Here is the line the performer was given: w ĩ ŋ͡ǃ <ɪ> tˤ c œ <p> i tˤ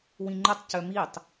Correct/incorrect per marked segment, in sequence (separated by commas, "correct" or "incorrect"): incorrect, incorrect